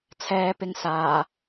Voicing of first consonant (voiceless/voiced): voiceless